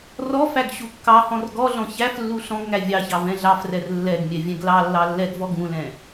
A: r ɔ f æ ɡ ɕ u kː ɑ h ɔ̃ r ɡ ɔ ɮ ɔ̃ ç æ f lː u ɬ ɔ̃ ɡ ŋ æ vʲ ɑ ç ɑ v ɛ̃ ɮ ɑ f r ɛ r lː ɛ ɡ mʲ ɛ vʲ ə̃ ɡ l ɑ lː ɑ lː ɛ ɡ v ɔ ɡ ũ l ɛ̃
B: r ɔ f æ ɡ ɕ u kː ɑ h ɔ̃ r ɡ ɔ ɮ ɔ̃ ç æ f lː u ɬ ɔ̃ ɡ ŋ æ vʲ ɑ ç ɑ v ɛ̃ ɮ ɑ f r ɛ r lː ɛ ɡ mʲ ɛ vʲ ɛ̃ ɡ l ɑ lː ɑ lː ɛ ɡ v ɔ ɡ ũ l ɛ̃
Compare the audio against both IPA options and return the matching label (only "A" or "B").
B